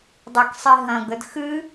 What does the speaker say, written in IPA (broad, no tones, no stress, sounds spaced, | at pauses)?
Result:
dˤ e k sˤ i ɦ ɐ̃ ɡ ə d x ɨ